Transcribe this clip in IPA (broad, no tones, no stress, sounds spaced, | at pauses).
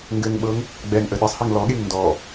ŋ ɡ ɘ ŋ ɓ ɤ ŋ | ɡ͡b ɛ ŋ ʔ ə ɗ ɘ sˤ h ɛ ŋ l ɔ ɠ e ŋ n d ɔ